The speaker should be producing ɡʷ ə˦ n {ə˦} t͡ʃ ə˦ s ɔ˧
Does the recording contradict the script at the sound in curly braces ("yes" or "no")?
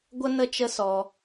no